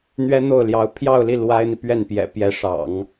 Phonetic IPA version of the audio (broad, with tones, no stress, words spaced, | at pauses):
n̪ɥɛ˥n̪o˥˩ʊ̯ljɑ˧˥ʊ̯ pʰjɑ˥˧ʊ̯li˥˩ lwa˥ɪ̯n̪i˨ pɥɛ˥˩npjɛ̰˨˩ pjɛ˧˥ʂɑ̰˨˩˦ŋ